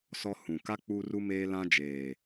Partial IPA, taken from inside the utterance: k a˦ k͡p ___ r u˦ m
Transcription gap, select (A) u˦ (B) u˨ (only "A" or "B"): A